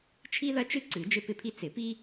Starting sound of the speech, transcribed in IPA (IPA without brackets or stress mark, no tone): t͡ʃʰ